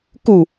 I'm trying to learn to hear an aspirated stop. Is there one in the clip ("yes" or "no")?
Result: no